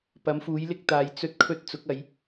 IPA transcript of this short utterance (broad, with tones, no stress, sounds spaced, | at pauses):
p ɐ˨˥ m f uː˨˥ j l ɪ˥ k̚ t̪ aː˨˧ j t͡s ɵ˥ t̚ kʰ ɵ˥ t̚ t͡s ʊ˨˥ k̚ ɐ˨˧ j